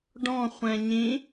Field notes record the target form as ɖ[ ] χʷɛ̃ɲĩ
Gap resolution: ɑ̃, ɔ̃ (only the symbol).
ɔ̃